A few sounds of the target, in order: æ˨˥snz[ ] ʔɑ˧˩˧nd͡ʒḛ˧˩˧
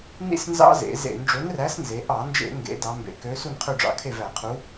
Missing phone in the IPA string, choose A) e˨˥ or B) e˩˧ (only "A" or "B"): B